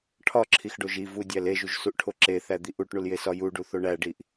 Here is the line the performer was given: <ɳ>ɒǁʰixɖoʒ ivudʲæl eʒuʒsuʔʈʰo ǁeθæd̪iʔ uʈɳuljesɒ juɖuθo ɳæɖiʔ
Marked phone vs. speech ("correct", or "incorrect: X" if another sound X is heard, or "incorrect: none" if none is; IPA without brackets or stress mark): incorrect: ʈʰ